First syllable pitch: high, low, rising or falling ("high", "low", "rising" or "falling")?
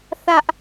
high